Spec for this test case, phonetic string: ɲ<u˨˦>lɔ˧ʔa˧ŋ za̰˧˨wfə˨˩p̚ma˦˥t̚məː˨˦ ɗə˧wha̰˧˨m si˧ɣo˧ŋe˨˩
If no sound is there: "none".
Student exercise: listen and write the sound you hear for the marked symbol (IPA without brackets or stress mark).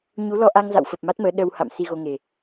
u˨˦